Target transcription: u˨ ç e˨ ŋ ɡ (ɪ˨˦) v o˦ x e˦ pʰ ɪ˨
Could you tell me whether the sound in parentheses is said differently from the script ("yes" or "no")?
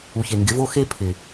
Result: no